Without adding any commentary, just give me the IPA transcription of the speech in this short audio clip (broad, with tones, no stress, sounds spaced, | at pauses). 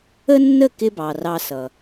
ə˦ nː ə˦˨ k ɪ˦ b ɑ˨ r ɑ˧ s ʌ˨